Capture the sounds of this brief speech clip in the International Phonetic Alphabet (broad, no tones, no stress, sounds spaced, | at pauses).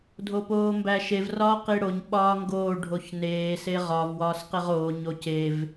dʱ o p oː m b æ ʃ e v r ɒː q i ɽ o ɲ ɓ ɒː ŋ ɡ oː ɖʱ o ç n eː s e ʁ ɒ v w ɒː s q e ʁ oː ɲ o c e v